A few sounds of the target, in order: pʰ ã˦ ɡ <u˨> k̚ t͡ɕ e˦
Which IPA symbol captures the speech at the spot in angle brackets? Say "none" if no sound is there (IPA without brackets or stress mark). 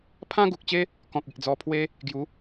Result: u˨